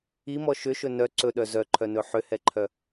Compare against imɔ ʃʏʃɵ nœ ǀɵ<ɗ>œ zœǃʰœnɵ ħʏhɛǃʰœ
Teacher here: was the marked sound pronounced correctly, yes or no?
yes